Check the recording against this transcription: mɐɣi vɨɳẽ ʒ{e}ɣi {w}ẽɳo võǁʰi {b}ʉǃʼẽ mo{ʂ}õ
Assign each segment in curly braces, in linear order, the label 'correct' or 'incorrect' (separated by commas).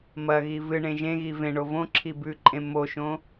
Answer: incorrect, incorrect, correct, incorrect